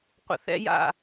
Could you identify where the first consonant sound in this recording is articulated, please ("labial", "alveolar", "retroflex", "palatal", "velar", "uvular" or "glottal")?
uvular